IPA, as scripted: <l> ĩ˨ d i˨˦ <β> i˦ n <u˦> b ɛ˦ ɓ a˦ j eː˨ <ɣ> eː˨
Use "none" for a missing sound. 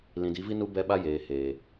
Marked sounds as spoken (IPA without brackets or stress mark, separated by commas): l, v, u˦, h